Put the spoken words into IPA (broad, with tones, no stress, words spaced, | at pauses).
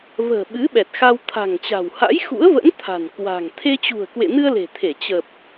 və̤ː˨˩ ɓɨ˨˦ɓɛ˨˩t̚ xa˧wt̪ʰa̤˨˩ŋt͡ɕa̤˨˩w ha̰˧˥jxṵ˧˥ə̯və̰˧˥n t̪ʰa̤˨˩nkwa̤˨˩ŋ t̪ʰe˧t͡ɕṳ˨˩ə̯kwḛ˧˨nɨ˧ə̯ le̤˨˩t̪ʰe˧˩ t͡ɕə˨˩p̚